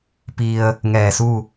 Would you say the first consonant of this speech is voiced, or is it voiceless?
voiceless